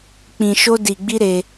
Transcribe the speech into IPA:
k͡pĩ˧ʃo˦ di˧ɡ͡bi˦ɾe˧

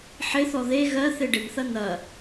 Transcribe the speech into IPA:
ħɪθɔ ðe ɣɜ θeɖɪnθɐ n̪ɐ

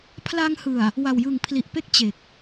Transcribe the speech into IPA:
pʰla˧ŋhɯ˨˩a̯ | wa˨˩wjɯ˨˩ŋ pʰli˨˩ʔpe˥˩k̚ t͡ɕe˨˩k̚

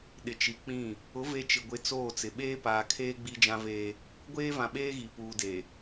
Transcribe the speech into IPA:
ɗɪ˨t͡ʃi˨k͡pĩ˦˨ | ʊ˨˦ ve˨ t͡ʃɪ˨ɡʷɪ˨˦ t͡soː˦˨t͡sɪ˨ ɓeː˦paː˨kʰeː˦ ɡ͡bi˦d͡ʒã˦veː˦ | ɡʷeː˦vã˨ɓeː˦ɣi˨ puː˨de˨

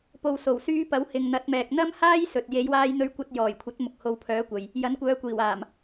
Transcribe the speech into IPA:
po˨wso˨˩wsyː˧ pɐ˨˥w hɪ˨ŋn̪ɐ˨˥t̚mɛː˨k̚ n̪ɐ˥mhaː˥j sɵ˨t̚ je˨˧jwaː˧jn̪ɵ˧ɥkʷɐ˧t̚ jɔː˨˩jkʷʰɐ˨˥t̚ mʊ˨k̚ho˨˧wpʰœː˨˧kʷɐ˨j | jɐ˨˥nkʷœː˨˧kʷiː˨˩waː˨˩m

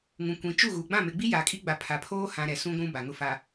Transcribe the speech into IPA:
ŋũ˨kʷĩ˨t͡ʃu˦˨ɣu˨ ɡ͡bã˦˨me˨ɡ͡bi˦ ja˨kʼi˦ ɡ͡ba˨pʰa˨pʰoː˦hã˨ ɾɛ˨sũ˦ ɡʷũ˦ba˨ ŋʊ˨fa˨

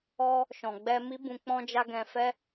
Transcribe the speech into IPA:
ɔ˧ | ʃɔ̃˨ ɡ͡bɛ˧mi˦bũ˧ k͡pɔ̃˦d͡ʒa˦ ɡɛ̃˧fɛ˦

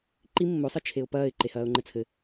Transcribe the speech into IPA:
ǃi mːo sˤɨt͡ʃʰeʊ̯pɐːɪ̯ ǃehɐːʊ̯ŋ͡ǃɘt͡sʰɘ

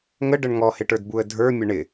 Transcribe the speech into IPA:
ŋəɖəɳ ŋɔhɪʈə˞dbuə̯ dʱə˞mʲə ɳɪ

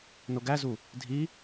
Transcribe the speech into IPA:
noɡæzu | dʱi

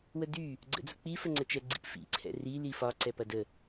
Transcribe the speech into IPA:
wədy | ɡ͡ǀə̰d͡zək͡pi fəŋ͡ǀət͡ʃɛɡ͡ǀḭp fḭ ǀʰɛ̰ri lifɒ ǀɛpɐdə

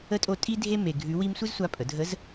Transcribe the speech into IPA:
ə˧˥tʼo˧ tʼi˥dʱe˥ me˧ɡʱʉ˧˥wi˥m sʷɨ˥zsʷa˧˥pʼə˩˧dʱə˧˥z

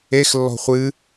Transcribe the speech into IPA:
ex lːɔ̤χʷɨ

